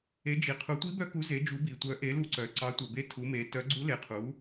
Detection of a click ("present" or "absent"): present